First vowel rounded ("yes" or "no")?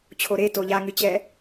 yes